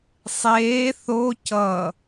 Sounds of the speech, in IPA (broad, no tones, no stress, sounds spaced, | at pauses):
sˤ eː θ o c ʌ